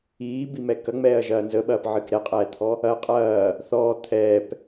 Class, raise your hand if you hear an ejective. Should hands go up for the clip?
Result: yes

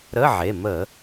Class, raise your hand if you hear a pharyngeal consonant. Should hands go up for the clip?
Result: yes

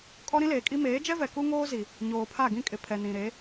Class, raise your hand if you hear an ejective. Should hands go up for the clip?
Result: yes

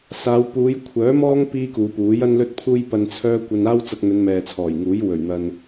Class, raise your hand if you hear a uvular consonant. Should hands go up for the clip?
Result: no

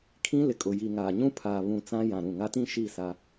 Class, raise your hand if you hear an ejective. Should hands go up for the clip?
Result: yes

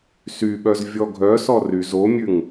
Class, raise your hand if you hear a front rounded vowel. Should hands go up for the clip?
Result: yes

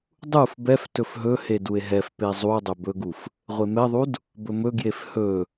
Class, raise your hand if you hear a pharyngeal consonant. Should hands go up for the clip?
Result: no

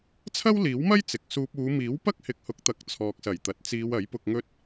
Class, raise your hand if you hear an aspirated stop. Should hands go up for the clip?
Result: yes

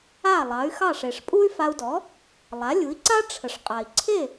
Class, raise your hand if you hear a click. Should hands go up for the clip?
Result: yes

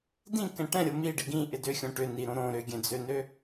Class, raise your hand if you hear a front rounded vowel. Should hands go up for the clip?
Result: yes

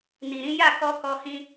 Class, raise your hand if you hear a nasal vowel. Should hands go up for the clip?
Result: yes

